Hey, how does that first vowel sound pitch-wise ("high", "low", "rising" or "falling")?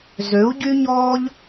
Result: rising